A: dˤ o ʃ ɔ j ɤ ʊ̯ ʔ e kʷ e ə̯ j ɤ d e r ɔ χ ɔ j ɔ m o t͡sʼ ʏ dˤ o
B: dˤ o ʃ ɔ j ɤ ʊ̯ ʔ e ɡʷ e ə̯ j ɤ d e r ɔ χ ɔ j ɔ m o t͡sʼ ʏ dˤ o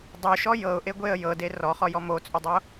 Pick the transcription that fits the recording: B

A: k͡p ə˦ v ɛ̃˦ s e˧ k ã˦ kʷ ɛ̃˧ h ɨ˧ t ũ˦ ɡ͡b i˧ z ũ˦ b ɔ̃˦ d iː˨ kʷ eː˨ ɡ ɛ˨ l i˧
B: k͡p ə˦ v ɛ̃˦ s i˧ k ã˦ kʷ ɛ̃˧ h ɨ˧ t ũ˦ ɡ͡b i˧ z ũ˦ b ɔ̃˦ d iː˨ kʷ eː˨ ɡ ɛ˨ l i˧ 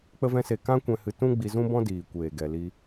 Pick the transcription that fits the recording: A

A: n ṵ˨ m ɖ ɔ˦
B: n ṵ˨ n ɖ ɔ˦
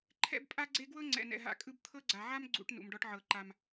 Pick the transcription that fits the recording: A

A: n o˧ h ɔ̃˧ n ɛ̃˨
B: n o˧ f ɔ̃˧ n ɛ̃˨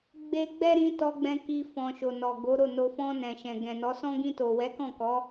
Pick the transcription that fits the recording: B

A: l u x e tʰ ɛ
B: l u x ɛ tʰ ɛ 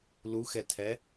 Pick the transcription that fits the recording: B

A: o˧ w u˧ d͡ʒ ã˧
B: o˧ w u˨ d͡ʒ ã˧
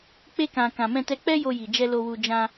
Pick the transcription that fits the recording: A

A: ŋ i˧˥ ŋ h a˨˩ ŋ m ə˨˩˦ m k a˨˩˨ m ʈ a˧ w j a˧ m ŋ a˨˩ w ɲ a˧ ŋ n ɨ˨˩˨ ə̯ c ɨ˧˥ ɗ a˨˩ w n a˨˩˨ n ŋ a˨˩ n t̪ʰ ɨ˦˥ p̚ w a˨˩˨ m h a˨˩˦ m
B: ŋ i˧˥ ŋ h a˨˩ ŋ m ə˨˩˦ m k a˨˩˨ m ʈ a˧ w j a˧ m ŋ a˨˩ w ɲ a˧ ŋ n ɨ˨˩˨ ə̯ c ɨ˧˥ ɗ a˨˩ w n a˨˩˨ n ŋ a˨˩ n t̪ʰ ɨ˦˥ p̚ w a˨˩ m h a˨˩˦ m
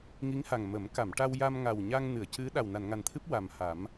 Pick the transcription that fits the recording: B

